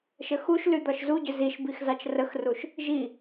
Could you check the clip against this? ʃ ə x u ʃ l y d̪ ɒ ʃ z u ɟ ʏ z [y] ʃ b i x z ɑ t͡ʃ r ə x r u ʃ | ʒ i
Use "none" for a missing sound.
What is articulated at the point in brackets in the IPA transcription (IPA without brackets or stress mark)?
i